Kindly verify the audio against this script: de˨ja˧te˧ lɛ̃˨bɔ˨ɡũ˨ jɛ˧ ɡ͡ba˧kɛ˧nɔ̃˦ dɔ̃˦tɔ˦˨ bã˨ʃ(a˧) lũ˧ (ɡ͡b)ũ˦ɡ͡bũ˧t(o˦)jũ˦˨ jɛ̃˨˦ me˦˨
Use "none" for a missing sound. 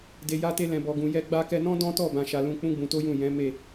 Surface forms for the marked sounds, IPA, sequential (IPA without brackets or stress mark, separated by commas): a˨, k͡p, o˦